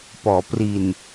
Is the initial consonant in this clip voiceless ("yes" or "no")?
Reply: yes